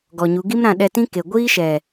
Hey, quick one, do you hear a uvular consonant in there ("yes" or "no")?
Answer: no